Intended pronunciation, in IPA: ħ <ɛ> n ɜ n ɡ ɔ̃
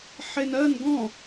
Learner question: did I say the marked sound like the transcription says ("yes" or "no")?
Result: no